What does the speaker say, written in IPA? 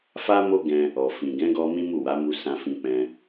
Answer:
fa˦mo˦ɡɛ̃˧ | ɔ˨fĩ˨ ɡɛ̃˨˦ɡɔ˧ mĩ˦mu˦˨wa˨˦mu˧ sã˧fĩ˧ k͡pɛ̃˧

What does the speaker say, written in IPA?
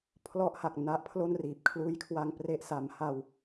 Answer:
pʰlɔ˦˥ʔha˨˩k̚ na˦˥ʔpʰlo˥˩nriː˨˩p̚ kʰluː˦˥jkʰwa˧ŋpre˦˥ʔ sa˩˦m ha˧w

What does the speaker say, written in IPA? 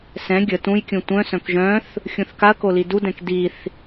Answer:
sɛ̃ ɡʲə tũjkʲũ tʷœ̃sœ̃k ʒœ̃θ | xʲũθkaɐ̯ko lidudɛ̃k diθ

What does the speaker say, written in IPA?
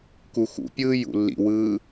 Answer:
kuxṵpʲɯː jṵlːḭwɯː

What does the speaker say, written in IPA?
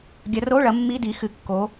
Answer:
ɡʲɐ˨˦ro˧˥˧ɭɐ˨˦ mːi˧˥˧ di˨˦xɨ˨˦ kːo˨˦

